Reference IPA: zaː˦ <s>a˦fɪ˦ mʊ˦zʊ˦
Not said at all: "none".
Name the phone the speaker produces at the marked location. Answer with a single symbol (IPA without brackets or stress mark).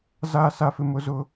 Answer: s